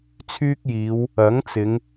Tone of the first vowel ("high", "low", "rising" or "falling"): high